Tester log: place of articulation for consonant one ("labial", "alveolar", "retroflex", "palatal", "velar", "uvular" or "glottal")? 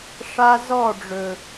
retroflex